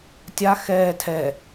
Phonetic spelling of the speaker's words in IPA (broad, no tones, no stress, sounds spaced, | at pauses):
tʲ a x ɛː tʰ ɛ